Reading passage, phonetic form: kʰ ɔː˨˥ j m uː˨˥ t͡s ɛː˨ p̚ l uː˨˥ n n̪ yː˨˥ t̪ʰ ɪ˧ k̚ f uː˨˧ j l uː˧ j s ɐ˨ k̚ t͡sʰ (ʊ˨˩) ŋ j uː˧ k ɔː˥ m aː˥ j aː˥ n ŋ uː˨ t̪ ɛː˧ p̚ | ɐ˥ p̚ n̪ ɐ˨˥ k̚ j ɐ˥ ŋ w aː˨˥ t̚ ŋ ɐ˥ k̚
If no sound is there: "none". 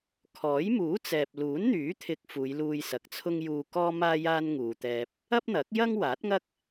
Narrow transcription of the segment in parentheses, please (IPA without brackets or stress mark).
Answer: ʊ˥